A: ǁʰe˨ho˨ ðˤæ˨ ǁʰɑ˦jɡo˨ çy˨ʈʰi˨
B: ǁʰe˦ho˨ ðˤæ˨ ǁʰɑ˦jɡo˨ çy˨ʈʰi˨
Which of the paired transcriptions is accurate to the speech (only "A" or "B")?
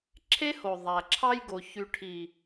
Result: B